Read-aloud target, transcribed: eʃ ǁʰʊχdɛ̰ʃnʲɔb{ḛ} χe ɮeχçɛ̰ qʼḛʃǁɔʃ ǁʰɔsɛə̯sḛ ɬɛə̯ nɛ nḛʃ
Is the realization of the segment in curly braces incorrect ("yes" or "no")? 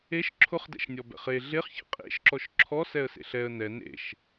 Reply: yes